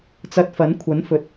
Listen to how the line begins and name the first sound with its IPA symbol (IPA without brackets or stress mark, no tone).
t͡s